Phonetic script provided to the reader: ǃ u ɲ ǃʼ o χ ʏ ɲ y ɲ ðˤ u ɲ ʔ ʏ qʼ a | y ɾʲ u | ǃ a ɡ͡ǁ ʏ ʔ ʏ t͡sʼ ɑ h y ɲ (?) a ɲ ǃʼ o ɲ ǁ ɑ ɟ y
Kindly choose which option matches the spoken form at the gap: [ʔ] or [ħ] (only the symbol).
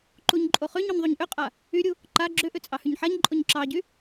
ħ